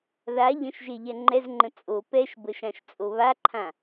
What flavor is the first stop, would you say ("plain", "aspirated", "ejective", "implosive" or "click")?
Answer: click